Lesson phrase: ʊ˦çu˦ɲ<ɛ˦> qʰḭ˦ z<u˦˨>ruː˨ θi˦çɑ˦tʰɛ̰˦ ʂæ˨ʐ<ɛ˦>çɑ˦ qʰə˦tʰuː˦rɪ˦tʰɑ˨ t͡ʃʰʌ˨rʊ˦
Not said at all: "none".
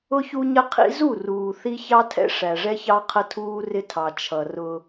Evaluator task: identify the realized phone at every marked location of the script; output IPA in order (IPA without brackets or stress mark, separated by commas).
ə˦, u˦˨, ɛ˦